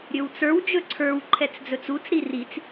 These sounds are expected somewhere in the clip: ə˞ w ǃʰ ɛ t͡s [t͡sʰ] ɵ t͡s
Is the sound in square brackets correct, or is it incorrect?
incorrect